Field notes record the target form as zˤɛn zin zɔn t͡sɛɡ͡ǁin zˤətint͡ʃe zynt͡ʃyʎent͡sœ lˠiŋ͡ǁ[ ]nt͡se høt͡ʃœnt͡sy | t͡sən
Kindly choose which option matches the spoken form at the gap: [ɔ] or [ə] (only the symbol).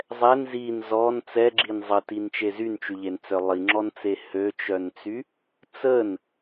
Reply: ɔ